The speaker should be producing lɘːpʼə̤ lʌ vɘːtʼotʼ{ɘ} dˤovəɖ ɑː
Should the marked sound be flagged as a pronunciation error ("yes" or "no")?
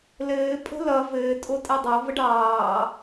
no